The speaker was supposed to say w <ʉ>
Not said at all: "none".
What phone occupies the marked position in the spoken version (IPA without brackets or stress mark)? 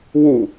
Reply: u